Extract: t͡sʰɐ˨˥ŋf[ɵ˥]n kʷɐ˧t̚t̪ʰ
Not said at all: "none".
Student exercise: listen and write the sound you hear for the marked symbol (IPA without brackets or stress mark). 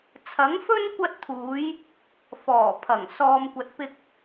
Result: ɵ˥